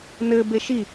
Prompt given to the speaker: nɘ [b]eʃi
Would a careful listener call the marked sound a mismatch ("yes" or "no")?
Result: no